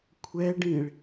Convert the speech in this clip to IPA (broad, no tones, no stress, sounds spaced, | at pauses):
kʷʰ ɛ ɖ ĩ ɭ